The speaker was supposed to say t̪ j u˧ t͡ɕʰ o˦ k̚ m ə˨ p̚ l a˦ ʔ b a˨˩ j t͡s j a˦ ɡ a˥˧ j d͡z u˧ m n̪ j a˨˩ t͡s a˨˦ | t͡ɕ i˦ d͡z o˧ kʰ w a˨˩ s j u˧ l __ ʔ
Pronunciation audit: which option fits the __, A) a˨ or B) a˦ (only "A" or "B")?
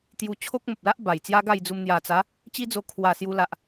A